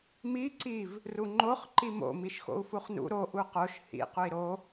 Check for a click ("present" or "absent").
present